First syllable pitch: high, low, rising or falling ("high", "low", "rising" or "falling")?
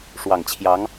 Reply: low